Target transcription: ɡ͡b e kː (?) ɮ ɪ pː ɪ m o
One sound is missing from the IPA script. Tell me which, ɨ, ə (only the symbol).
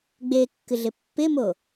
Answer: ɨ